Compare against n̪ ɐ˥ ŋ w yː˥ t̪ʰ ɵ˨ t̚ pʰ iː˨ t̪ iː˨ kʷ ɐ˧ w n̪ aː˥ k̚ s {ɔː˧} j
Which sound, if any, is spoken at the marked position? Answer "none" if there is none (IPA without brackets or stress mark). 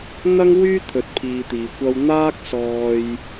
ɔː˧